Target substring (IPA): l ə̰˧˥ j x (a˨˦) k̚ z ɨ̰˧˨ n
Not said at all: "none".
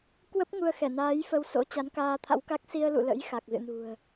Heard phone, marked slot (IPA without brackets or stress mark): a˨˩